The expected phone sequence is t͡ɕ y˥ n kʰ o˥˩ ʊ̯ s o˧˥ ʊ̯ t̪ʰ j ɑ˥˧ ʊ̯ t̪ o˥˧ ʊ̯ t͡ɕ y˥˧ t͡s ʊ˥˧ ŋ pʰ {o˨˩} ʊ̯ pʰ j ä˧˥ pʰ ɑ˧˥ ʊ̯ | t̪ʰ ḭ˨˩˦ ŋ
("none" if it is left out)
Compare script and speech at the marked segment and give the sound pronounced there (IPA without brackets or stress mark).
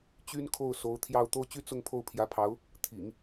o˥˩